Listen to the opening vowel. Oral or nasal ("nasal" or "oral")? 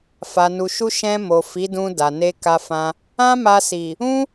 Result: oral